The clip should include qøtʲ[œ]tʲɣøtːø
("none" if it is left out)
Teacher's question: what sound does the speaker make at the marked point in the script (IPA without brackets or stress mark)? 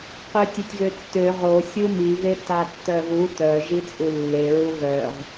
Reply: ø